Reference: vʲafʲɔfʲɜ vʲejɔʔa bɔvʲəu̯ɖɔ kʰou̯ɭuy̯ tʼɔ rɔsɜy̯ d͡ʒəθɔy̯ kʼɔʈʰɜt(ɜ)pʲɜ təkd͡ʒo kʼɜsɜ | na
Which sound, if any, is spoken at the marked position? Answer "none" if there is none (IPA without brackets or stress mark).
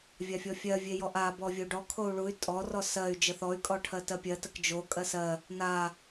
ɜ